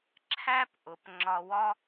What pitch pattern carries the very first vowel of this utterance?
high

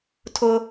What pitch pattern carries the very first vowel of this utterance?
high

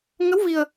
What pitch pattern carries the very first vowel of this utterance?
rising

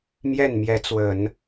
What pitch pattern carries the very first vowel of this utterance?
falling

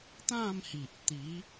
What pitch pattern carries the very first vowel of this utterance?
falling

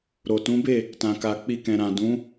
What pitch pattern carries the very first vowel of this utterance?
low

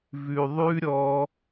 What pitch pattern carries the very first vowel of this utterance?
low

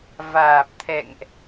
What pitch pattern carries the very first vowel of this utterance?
low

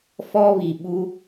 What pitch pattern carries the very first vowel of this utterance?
high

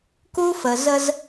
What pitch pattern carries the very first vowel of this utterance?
high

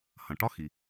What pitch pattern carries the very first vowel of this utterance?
low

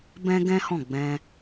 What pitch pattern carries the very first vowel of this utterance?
high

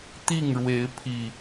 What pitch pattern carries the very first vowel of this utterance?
falling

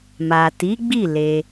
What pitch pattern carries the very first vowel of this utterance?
low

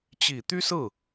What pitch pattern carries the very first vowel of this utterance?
low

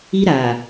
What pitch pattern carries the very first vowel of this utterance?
high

